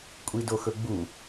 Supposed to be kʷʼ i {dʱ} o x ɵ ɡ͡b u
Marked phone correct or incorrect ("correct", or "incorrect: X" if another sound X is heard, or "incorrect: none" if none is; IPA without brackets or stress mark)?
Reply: incorrect: d